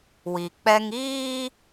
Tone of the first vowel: low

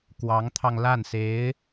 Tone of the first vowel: rising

